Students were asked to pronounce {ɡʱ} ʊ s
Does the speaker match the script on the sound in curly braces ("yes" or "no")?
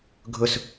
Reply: yes